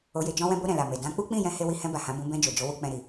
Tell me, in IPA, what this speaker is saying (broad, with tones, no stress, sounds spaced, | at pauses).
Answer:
o˧ j e˧ d͡ʒ ɔ̃˧ w ɛ̃˧ b o˧ ɾ ɛ̃˨ l a˨ m e˨ d ã˨˦ k͡p u˦ k͡p ĩ˦˨ j ɛ̃˨˦ h e˧ w i˧ h ɛ̃˧ b a˨ h ã˨˦ b ũ˧ b ɛ̃˧ d͡ʒ o˨ d͡ʒ o˨˦ w u˧ k͡p ɛ̃˧ ɾ i˨